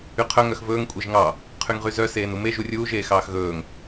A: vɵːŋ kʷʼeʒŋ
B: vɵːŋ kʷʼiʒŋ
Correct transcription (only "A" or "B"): A